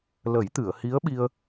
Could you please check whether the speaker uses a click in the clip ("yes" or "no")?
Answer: no